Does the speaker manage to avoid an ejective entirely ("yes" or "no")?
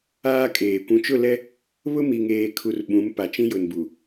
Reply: no